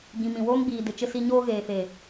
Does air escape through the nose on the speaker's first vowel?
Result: yes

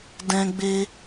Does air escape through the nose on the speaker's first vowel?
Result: yes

